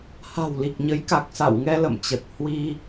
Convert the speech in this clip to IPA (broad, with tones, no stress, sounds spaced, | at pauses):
h a̤˨˩ w l i˨˩ k̚ ɲ ə˨˦ j k a˨˩ k̚ s a̰˧˨ w ŋ ɛ˧ l ə̰˧˨ m t͡ɕ ə˨˩ t̚ h w i˧